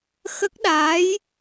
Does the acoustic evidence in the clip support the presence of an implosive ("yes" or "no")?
yes